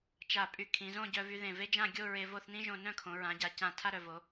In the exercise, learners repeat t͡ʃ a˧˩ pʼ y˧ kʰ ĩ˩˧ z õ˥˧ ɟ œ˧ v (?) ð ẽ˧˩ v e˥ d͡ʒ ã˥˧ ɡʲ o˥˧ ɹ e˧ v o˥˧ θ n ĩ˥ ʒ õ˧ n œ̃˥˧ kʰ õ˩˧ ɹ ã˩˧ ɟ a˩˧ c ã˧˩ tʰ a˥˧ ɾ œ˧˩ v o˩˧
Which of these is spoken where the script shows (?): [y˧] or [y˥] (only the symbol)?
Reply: y˧